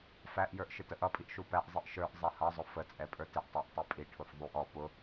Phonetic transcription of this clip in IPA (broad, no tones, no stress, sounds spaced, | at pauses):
f æ ʔ j ə˞ ʔ ʃ ɪ t ə ʔ ʌ pʼ i ʔ ʃ u p æ ʔ zˤ i ʔ ʃ ə˞ ʔ zˤ ɛ h ʌ zˤ ʊ f ə t͡sʼ ɛ pʼ ə˞ t ɪ ʔ tˤ æ ʔ tˤ i pʼ i ʈʰ ʊ f ðˤ u ʔ ɔ p ʊ